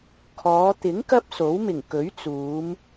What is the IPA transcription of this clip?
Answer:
kʰɔː˨˧t̪ɪ˨˥ŋ kɐ˥p̚so˨˥wmɪ˨˩ŋ kɵ˨˥ɥt͡suː˨˧m

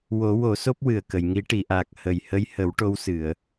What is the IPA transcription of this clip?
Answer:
wo˨˩˦wo˨˩˦so˦˥p̚ wɨ˨˩ə̯kə˨˩˨jŋi˧˥ ʈi˨˩˨ʔaː˨˩k̚ hə˨˩j hə˧jhə˨˩˦w ʈo˧˥wsɨ˨˩˨ə̯

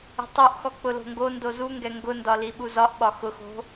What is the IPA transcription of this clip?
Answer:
ə̤tˤuʔxɔ k͡pʊlo̤ŋɡondo zuŋɡɛ ŋɡʊndɒ liɓuzɒʔɓɒ xʊxo̤

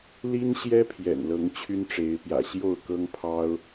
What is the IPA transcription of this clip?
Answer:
li˦nɕjɛ˦pʰjɛ̰˨˩nlɤ˨˦ŋ t͡ɕʰy˦nʈ͡ʂe˨˦ɪ̯pjä̰˨˩ ɕjo˥˨ʊ̯kɤ˦ŋpʰɑ˦ʊ̯

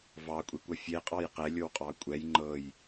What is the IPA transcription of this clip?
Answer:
vɑkʷʼekʷʌ fʲeqʼɑj qɛlʲowqʼɑ kʷʼɛj ŋ͡ǃɤj

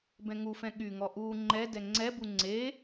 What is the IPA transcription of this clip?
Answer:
bɛ̃ŋufɛ̃ ɠyŋɔ ʔu ŋ͡ǃɛ dɛŋ͡ǀɛbu ŋ͡ǀe

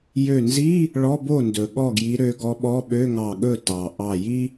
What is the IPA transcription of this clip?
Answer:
jø˧˩nzi˧˥˧ | ɭɔ˧˥˧bo˥˩ndɵ˩ ɠɔ˥˩ɡji˨˦ɾø˨˦ ɡɔ˨˦ɓɔ˧˥˧ ɓø˧˥˧ŋɑ˧˩ɠɵ˥˩ tɑ˩ ʔɑ˧˩ ji˥

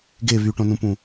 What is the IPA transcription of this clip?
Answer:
ɡe βyʈõnũpũ

